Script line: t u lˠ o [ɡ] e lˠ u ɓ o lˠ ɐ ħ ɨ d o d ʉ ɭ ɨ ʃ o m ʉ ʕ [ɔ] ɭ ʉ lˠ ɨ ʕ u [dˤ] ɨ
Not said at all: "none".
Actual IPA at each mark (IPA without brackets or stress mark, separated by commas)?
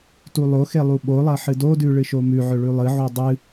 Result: x, ɵ, dˤ